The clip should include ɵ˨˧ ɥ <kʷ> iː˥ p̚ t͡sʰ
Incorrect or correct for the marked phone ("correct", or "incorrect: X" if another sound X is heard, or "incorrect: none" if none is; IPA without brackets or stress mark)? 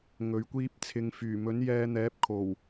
correct